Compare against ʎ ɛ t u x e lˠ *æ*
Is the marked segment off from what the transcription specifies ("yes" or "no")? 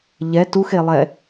yes